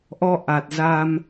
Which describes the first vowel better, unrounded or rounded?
rounded